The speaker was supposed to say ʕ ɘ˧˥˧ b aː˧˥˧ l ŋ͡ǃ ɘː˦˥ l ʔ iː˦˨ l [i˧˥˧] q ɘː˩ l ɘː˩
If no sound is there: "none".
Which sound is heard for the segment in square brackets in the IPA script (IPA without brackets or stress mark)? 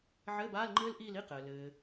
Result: i˧˥˧